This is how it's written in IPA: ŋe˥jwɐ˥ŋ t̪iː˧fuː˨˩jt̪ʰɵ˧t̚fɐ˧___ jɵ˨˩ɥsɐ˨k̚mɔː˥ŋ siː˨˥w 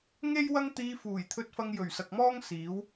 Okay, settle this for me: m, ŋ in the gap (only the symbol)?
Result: ŋ